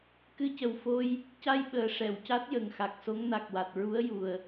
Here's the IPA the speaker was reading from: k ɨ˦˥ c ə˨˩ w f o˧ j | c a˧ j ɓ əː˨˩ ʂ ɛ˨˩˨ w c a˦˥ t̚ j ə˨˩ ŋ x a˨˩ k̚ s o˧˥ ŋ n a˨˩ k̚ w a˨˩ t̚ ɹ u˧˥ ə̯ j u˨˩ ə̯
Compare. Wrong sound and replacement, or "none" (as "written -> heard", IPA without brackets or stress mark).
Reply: ɨ˦˥ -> ɨ˧